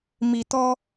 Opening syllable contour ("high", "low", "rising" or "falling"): low